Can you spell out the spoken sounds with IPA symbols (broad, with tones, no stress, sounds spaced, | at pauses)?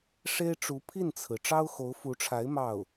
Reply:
ʂ e˥ ɪ̯ ʈ͡ʂ u˧˥ pʰ i˥˩ n t͡sʰ ɹ̩˩ ʈ͡ʂ ɑ˥ ʊ̯ x o˧˥ ʊ̯ f u˧˥ ʈ͡ʂʰ a˧˥ ɪ̯ m ɑ˥˩ ʊ̯